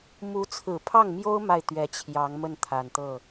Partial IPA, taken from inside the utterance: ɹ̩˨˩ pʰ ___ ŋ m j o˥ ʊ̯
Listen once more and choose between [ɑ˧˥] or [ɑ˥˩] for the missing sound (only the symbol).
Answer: ɑ˥˩